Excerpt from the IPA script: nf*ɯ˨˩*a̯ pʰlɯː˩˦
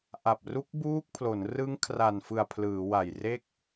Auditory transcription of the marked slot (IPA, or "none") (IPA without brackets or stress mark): ɯ˨˩